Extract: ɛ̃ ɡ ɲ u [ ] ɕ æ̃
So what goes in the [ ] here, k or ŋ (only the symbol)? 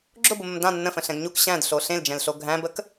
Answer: k